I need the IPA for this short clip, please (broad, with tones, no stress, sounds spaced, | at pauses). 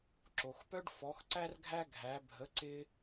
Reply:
ǁ o˩ x p œ˥ ɖ f ɔ˩˥ x ǀ æ˥ r ɡʱ æ˥ ɡʱ æ˩˥ bʱ ə˩˥ ǀ ɪ˧